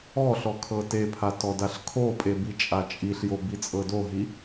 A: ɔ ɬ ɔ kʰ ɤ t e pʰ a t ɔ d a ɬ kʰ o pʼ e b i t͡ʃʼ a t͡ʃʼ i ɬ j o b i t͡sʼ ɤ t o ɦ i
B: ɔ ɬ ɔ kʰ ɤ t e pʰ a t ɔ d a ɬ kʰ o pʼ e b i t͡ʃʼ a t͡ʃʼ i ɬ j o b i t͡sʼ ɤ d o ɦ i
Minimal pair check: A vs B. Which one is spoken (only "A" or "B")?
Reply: B